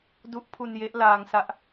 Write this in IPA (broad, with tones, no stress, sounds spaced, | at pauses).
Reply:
d u˦˥ ʔ pʰ u˧ n j e˦˥ ʔ l aː˧ ŋ s a˥˩ ʔ